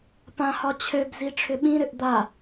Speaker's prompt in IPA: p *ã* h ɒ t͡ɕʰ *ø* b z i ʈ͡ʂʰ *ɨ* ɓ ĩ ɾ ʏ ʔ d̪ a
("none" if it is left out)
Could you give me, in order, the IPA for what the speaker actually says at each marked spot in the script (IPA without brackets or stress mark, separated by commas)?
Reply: ã, ø, ʏ